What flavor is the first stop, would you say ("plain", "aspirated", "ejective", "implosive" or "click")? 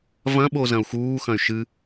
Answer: implosive